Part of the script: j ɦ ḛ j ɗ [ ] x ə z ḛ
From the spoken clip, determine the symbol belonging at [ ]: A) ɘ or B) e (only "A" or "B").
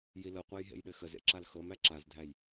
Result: A